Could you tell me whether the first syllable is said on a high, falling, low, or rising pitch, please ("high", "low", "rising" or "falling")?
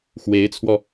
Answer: rising